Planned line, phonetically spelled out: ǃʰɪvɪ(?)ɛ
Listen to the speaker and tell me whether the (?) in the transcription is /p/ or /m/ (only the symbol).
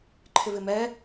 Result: m